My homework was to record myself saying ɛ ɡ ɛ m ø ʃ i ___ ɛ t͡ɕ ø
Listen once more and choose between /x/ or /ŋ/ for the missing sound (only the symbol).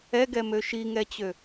ŋ